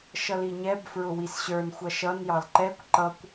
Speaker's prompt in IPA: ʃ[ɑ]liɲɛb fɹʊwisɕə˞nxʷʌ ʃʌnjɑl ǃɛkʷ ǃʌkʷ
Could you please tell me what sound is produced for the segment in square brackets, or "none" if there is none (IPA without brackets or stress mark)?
ʌ